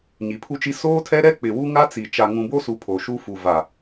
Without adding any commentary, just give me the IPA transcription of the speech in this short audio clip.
ɲ i˨ pʰ u˦ t͡ʃ i˦ s oː˦ tʰ ɛ˦ ɾ ɛ˦ k͡p ɪ˨ w u˦ ŋ a˦ t͡s i˨ t͡ʃ a˨ ŋ ũ˨ b o˦ s u˨ pʰ o˨ ʃ u˦ f u˨ v a˨

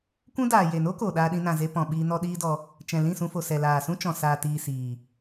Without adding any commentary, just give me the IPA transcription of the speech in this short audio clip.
kʷ ũ˦ d aː˨ j e˨ n o˦ k o˨ ɗ aː˧ ɗ ĩ˧ n ã˨ z e˧ p ɔ̃˨ ɓ iː˧ n ɔ˦ ɗ iː˦ d ɔ˧ | t͡ʃ ɛ̃˨ l ĩ˦˨ s ũ˧ f o˨ s ɛ˨ l aː˨ s ũ˦ t͡ʃ ɔ̃˨ s aː˨ t iː˨ s iː˨

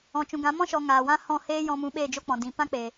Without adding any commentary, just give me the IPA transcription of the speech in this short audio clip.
ɔ̃˨ t͡ʃ ũ˨ ɡ ã˨˦ m ɔ̃˦ ʃ ɔ˨ ŋ aː˨ w ã˦ h ɔ̃˦˨ h eː˦ j ɔ̃˧ m ũ˧ ɓ eː˦˨ d͡ʒ o˦ k͡p ɔ̃˨ d ĩ˨ p ã˦ k͡p eː˨

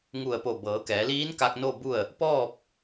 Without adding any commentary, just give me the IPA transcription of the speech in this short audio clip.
ŋ u˧˩ ə̯ p o˧˩ b ɤː˩˧ k ɛː˩˧ l iː˧˥ n k a˧ k̚ n o˥˨ b u˥˨ ə̯ | p ɔː˥˨ p̚

